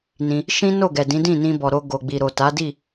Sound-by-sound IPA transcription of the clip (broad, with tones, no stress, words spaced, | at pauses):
nĩ˧ | ʃĩ˦ no˦˨ɡɛ˨ dĩ˨˦dĩ˦˨nĩ˧bɔ˨ ɾo˧ ɡo˨ɡ͡bi˨ɾo˨ ta˨˦ di˦˨